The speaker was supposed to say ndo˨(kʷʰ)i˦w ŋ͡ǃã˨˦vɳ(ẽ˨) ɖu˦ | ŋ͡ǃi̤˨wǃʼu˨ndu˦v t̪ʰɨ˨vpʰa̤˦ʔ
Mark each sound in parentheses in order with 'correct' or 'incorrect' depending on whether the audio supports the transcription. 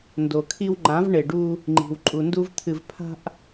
incorrect: kʰ, incorrect: e˨

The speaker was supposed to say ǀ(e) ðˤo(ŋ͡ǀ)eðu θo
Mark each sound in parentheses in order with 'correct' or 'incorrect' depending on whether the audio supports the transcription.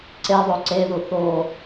correct, incorrect: ǀ

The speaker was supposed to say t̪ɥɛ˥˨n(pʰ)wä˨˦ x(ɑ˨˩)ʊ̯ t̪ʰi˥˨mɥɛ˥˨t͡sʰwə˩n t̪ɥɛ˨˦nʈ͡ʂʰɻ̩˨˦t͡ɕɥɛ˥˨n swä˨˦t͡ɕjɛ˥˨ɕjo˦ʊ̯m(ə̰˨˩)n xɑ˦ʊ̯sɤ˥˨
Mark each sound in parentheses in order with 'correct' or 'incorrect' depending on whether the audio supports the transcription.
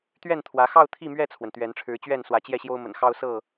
incorrect: t̪ʰ, incorrect: ɑ˥˨, correct

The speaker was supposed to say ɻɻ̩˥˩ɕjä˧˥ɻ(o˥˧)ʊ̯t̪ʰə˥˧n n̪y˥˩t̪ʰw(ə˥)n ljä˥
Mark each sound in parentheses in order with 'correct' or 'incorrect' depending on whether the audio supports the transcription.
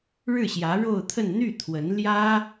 correct, incorrect: ə˧˥

